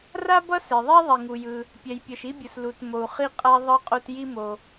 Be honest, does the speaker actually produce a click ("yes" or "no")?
no